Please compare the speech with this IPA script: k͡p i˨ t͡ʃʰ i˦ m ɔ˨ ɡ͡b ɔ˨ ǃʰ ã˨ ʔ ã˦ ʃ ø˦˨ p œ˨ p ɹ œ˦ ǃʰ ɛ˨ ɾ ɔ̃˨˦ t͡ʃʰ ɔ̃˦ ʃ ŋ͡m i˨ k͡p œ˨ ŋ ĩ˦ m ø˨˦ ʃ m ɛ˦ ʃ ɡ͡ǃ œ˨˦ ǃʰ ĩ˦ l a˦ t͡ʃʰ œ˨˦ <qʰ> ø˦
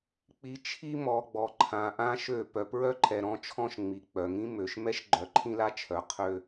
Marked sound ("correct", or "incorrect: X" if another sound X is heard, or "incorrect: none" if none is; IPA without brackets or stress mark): correct